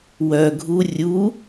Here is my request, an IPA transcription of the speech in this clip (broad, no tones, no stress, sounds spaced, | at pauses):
w œ ɡʱ u rʲ u